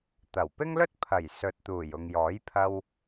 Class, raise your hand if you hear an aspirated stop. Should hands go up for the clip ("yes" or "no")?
yes